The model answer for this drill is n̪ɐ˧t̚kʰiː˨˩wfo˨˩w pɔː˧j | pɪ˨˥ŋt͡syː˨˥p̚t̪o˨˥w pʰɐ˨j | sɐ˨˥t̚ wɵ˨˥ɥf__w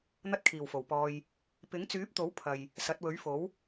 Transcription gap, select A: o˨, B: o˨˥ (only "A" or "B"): B